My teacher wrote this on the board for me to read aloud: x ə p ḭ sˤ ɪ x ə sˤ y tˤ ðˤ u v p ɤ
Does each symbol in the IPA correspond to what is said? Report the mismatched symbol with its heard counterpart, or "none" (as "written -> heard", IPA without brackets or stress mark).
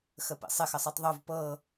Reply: none